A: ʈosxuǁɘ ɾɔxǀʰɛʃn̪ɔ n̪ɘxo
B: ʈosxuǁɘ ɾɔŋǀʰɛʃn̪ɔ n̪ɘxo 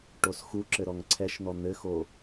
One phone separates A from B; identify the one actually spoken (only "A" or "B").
B